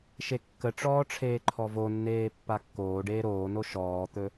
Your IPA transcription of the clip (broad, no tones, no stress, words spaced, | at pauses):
ʃekːəʈ͡ʂɔː ʈ͡ʂʰeːǃʰɔvonːeː pːakːoːɖeː ɾoːno ʃɔːt̪ɵ